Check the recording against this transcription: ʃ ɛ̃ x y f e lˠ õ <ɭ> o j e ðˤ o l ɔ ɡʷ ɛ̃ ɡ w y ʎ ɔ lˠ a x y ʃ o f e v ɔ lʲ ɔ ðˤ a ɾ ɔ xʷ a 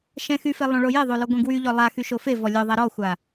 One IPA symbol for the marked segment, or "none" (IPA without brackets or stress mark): ɭ